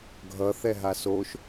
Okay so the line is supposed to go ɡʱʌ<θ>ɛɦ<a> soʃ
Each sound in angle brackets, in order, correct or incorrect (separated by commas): correct, correct